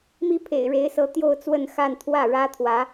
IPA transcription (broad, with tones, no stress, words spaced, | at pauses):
mi˥ pʰḛ˨˩ɪ̯ɻe˧˥ɪ̯sɤ˧˥ t̪jo˥˧ʊ̯t͡swə˥˧nxa˥˧n t̪ʰwä˥˩ɻä˥t̪ʰwä˧˥